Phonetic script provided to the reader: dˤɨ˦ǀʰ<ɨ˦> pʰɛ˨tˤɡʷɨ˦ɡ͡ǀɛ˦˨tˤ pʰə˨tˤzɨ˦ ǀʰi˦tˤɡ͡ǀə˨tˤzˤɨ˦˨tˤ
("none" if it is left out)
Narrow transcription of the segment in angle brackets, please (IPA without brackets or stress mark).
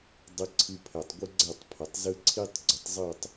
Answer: ɨ˦